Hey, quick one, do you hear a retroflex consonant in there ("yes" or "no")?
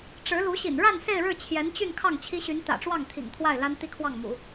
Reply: yes